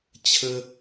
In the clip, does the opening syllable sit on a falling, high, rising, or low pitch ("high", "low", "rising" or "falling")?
high